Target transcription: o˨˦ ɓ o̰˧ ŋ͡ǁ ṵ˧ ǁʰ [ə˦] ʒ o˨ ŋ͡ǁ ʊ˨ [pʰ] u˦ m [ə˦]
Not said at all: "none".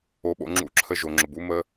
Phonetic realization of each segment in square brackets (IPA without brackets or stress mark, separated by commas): ə˧, b, ə˦